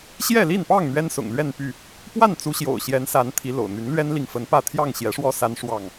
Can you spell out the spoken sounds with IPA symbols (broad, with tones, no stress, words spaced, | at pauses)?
ɕjɛ˥˨li˥˨npɑ˥˨ŋ n̪ɥɛ˦nsʊ̰˨˩ŋlɥɛ˥˨npy˥˨ | pwa˥˨nt͡su˨˦ɕjo̰˨˩ʊ̯ ɕjɛ˨˦nsa˨˦n t̪ʰi˨˦lo̰˨˩ʊ̯n̪y˨˦n lɥɛ˦nli˨ŋ fə˨˦npä˥˨ t̪ʰjɑ˥˨ŋɕjɛ˨˦ʂwɔ˦ sa˦nʂwɑ˥˨ŋ